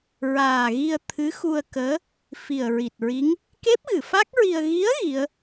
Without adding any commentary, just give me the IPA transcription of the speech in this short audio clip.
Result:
ɹ aː˨˩ ɣ i˧ ə̯ t̪ʰ ɨ˧˥ x u˧ ə̯ k əː˧˥ | f i˨˩ ə̯ ɹ i˨˩ t̚ ɹ i˧˥ ŋ | k e˦˥ p̚ ɣ ɨ˨˩˨ f a˦˥ k̚ ɹ i˧ ə̯ ɣ i˧˥ ə̯ ɣ i˧˥ ə̯

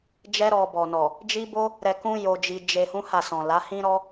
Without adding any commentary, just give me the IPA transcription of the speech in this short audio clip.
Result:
d͡ʒ ɛ˦ ɾ ɔ˧ b ɔ˨ n ɔ˨ | d͡ʒ i˦ b o˦ | ɾ ɛ˧ k ũ˦ j o˧ d͡ʒ i˧ d͡ʒ e˧ h ũ˦ h a˦˨ s ɔ̃˨ l a˨˦ h ĩ˦ ɾ ɔ˦

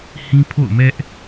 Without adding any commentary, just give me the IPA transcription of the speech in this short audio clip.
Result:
h ĩ˦ pʰ o̰˦˨ ʊ̯ m ɛ˦ ʔ

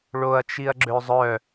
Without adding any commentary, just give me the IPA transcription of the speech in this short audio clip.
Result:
ɭ o ɐ̯ t͡ʃ i ɐ̯ ɡ͡ǁ ø zˤ œ

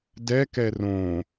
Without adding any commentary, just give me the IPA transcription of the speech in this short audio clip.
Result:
d ɛ k ɛ r õ

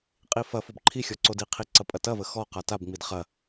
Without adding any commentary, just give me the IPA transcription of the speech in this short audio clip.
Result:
qʼ i f ɐ f o b ǃʰ i xʲ ɔ ǀ o d i qʰ i ǀ ɐ pʼ ɐ t ɐ v ə x ɔ q a t a b ŋ͡m i d χ ɐ

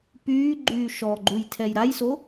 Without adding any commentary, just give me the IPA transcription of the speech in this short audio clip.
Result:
p yː ɡ͡ǃ yː ʃ ɔ ɡ͡ǃ u j tʰ ɛ j ɾ a j s o

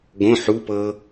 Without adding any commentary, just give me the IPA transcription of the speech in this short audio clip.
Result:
ɡ õ ħ u p ɤ

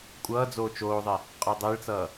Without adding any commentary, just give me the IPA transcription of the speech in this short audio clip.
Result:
kʷʼ ʌː d͡z oː t͡ʃ oː ðˤ e | qʼ ɔ dˤ e ɭ t͡s ʌː

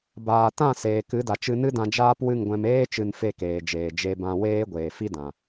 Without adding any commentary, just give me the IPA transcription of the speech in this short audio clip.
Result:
b aː˨ t ã˦˨ s eː˨ k ɨ˨˦ d a˨ t͡ʃ ɨ˧ n ɨ˦ d ã˧ d͡ʒ aː˦ p w ɨ˦˨ ŋ ɡʷ ɛ̃˧ m eː˦ t͡ʃ ɨ˧ n f e˦˨ k eː˨ d͡ʒ eː˨ d͡ʒ e˧ b ã˧ w eː˦ ɡʷ eː˨ f i˦ d ã˨

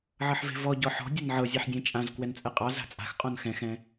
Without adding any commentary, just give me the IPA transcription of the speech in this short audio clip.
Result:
ʕ ʌ ħ v e̤ v ɔ ɟ ɔ ħ ɔ̤ dʲ ʌ n ʕ ɤ zʲ e ħ dʲ ɛ̃ t͡ʃʼ ã z k w ɛ n t͡sʼ ɛ qʼ ɑ z a̤ t͡sʼ a̤ x qʼ ɔ̃ n x ɛ̃ x ɛ̃

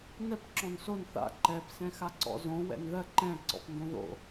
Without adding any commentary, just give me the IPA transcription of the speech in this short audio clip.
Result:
n ɛ p ǁ ɔ̃ n s o n θ a̰ ǃ ɛ p s ɛ̃ x a ǀ ɔ̰ z õ w ɛ̰ n ð ɜ ǃ ɛ̃ ǀ ɔ̰ p n d õ ð o̰

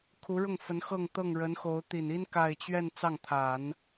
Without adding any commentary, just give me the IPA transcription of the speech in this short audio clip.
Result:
kʰ u˧˥ ɻ ʊ˥˩ ŋ f ə˧˥ n x ɤ˥˧ ŋ t̪ ɤ˥˩ ŋ ɻ ə˧˥ n x o˧˥ ʊ̯ t̪ i˨˩ n i˥ n k a˥˧ ɪ̯ t͡ɕ ɥ ɛ˥˧ n t͡s ɑ˥˩ ŋ t̪ʰ a˨˩˦ n

